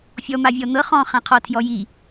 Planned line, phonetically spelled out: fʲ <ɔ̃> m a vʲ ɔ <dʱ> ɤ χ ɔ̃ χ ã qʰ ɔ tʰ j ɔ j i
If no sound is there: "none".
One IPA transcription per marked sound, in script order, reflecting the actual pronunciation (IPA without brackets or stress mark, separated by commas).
ɔ, n̪